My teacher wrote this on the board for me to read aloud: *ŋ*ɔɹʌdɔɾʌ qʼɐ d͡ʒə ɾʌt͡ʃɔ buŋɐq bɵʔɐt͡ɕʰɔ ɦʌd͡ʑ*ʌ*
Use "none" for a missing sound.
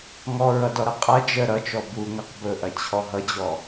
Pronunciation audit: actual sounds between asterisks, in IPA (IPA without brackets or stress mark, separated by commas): ŋ, ɔ